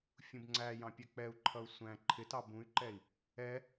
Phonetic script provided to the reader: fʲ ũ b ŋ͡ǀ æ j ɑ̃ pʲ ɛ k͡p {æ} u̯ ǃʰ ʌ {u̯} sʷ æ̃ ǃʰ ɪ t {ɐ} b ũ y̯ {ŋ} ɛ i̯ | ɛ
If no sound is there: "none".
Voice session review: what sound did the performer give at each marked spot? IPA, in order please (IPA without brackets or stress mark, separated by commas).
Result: ɛ, u̯, ɑ, ǃ